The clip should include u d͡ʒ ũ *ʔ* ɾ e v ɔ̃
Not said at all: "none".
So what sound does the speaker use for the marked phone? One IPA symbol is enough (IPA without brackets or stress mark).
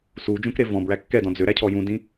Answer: k